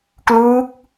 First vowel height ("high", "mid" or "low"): high